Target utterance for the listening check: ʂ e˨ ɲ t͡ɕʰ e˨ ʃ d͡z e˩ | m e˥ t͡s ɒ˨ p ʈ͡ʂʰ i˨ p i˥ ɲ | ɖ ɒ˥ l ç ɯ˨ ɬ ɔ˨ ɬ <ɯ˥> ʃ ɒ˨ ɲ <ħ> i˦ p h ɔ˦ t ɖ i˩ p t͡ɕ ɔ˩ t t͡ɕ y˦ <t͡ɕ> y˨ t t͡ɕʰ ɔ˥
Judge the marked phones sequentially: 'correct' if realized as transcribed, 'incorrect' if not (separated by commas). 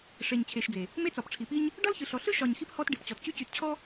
correct, incorrect, correct